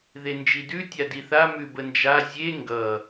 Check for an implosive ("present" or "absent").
absent